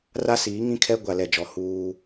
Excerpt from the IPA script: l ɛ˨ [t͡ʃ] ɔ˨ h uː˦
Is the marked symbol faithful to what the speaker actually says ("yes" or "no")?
no